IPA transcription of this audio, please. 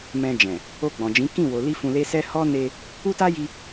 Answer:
m ɛ̃˧ d͡ʒ ɛ̃˨ | o˧ ɡ͡b ɔ̃˨ d͡ʒ ĩ˨˦ k ĩ˦˨ w o˨ l i˧ f ũ˧ l e˦ s ɛ˦ h ɔ˦ n e˧ | u˦ t a˦ j i˧

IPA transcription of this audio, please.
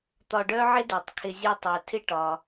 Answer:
t̪ ɒ˨ ɖ œ˦ ʕ ɪ˥ d ø˩ tˤ kʰ ɪ˨ zʲ u˨ tˤ œ˩ tʰ ɪ˦ ʈ ɒ˩

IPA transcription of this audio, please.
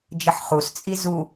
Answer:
d͡ʒ ə ħ χ u s t͡sʼ i z u

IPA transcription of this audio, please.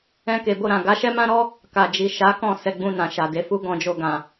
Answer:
ɛ̃˧ k e˨ b o˧ ɾ ã˨ ɡ a˨˦ ʃ ɛ˦ m ã˦ ɾ ɔ˦ | k a˨ d͡ʒ i˨ ʃ a˨˦ k ɔ̃˦˨ s ɛ˧ ɡ͡b ũ˧ n ã˨ ʃ a˨ d e˨˦ f u˦ ɡ ɔ̃˧ d͡ʒ o˧ ɡ ã˨

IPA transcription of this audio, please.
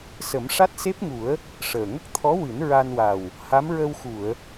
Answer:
s ə˨˩˦ m ʂ a˦˥ t̚ s e˦˥ p̚ ŋ u˨˩˦ ə̯ | ʂ əː˨˩ ŋ ə˦˥ k̚ t̪ʰ ɔ˧˥ w ɨ˨˩˦ n ɹ a˧ n w a˨˩ w | h a˧˥ m ɹ ə˧ w x u˨˩˨ ə̯

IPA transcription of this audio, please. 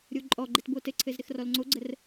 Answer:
ɾʲ o ǃʼ ɔ ɡ͡ǃ ɘ t b o t ɘ ǀʰ ɘ z ɾ ɘ x r ɔ l ŋ͡ǀ o ɡ͡ǀ ə r

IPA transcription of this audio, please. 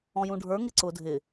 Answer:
ɔ̃ j ũ ɖʱ ə˞ ŋ ɪ ǀ ʊ dʱ ɪ

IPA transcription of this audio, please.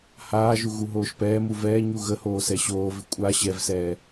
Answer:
h aː ʒ u ɣ u ɦ oː ʃ p ɛː m u v ɛː ɲ u ɣ ə h oː s ɛ ɕ oː v ɪ kʷʼ a ɕ ɛ v s ɛː

